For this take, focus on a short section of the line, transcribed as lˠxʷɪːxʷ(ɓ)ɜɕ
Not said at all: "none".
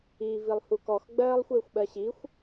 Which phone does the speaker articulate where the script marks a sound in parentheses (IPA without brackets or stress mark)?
ɓ